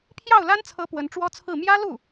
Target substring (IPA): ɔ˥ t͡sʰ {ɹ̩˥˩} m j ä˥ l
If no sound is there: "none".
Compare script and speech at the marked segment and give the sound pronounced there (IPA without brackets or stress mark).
ɹ̩˥˩